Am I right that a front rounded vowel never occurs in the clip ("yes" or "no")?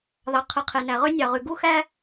no